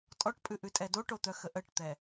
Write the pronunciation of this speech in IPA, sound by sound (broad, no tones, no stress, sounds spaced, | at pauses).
tʼ ɔ ʈ pʼ ʉ ʔ ʉ tʼ ɛ d o ʈ o t̪ œ x ə ʔ ə ʈ t̪ ɛ